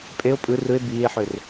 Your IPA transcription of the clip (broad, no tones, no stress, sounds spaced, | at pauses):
pʼ e o̯ pʼ ɯ r ɯ e̯ b iː e̯ ħ ø r